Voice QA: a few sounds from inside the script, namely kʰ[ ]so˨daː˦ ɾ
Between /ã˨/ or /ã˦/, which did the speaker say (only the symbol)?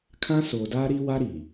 ã˦